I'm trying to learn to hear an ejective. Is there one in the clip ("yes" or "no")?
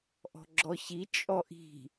yes